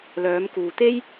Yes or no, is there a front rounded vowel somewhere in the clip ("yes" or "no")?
yes